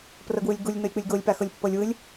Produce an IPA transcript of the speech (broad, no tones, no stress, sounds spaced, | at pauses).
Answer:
p r ɤ ɡ w ɯ lʲ ɡ u lʲ n ɤ lʲ k͡p ɯ lʲ ɡ o lʲ p a x ɤ lʲ pː ɤ lʲ w ɯ lʲ